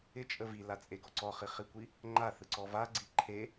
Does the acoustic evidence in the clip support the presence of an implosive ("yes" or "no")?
no